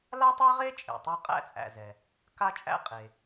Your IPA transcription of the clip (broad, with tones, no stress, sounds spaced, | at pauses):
l a˥ tˤ e˥ ʁ e˥ t͡ʃʼ ḛ˩ tˤ a˥ qʼ æ̰˥ t͡sʼ æ̰˩ z ɛ˩ | k a˥ t͡ʃʼ æ̰˥ qʼ e˩